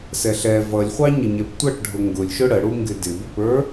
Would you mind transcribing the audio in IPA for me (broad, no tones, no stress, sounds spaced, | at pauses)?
s ɛ ɬ ɛ v ʌ lʲ χʷ ɑ ɲ ə ɲ ɛ p tʷ ʌ ʈ ɖʱ ʊ ŋ ɡ ʊ lʲ ʃ ʊ ɽ ə ɽ u ŋ ɡ ɪ d ɪ b ɪ p ə˞